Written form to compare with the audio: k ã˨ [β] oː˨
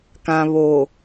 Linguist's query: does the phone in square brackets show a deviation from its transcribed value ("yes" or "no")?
no